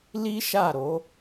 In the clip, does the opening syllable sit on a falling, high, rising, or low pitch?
high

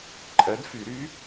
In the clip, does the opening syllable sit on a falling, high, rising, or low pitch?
rising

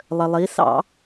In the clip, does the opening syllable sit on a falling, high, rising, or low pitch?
low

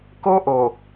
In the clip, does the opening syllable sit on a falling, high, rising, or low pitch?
high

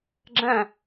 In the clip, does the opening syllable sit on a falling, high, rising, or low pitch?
falling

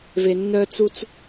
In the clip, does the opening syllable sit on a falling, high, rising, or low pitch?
low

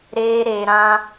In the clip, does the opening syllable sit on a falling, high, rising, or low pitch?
high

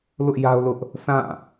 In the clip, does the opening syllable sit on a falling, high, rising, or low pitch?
high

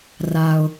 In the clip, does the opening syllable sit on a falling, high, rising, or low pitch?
low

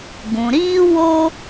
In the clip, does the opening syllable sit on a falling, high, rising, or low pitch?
low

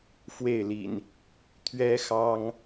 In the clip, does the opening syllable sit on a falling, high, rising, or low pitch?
falling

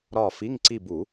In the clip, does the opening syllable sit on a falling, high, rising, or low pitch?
falling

